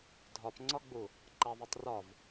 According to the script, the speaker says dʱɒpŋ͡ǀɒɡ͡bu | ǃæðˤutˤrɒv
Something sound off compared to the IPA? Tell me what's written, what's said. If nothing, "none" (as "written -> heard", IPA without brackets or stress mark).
none